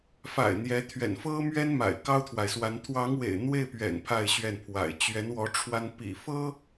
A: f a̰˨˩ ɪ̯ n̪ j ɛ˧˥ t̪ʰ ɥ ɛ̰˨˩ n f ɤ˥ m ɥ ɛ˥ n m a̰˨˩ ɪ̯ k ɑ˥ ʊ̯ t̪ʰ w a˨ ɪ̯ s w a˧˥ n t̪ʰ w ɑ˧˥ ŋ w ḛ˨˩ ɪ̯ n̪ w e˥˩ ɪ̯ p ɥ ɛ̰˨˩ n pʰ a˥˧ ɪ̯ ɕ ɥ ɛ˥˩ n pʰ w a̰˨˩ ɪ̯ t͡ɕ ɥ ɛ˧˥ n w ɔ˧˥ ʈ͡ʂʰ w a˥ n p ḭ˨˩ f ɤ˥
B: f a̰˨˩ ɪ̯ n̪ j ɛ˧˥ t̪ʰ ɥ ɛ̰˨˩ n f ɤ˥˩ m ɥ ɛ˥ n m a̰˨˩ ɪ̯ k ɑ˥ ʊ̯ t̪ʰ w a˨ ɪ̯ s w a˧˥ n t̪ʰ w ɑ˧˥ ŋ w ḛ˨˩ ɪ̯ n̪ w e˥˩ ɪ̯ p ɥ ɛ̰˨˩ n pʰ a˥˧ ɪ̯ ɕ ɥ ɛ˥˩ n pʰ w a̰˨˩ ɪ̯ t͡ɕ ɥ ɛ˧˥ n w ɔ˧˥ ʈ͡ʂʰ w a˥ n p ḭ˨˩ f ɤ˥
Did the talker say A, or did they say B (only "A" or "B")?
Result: A